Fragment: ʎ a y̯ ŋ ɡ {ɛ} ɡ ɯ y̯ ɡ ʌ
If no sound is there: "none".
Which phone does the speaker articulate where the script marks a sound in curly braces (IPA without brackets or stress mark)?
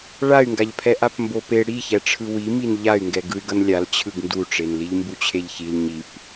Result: ɛ